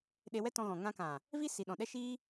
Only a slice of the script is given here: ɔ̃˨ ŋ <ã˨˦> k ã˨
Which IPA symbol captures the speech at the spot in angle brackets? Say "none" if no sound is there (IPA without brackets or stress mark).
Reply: ã˧